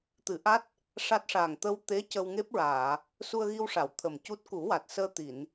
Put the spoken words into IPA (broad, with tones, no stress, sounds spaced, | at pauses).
t̪ ɨ˨˩˦ ʔ a˦˥ t̚ | ʂ a˦˥ t̚ ʂ aː˨˩ ŋ t̪ ə˧ w t̪ e˧˥ c ə˧ w ŋ e˦˥ p̚ ɹ aː˨˩˨ | s u˧ ə̯ ɣ i˧ w ʂ a˨˩˨ w t̪ʰ ə˨˩ m c u˦˥ t̚ k u˨˩˦ w a˨˩ t̚ s əː˧ t̪ i˨˩˨ n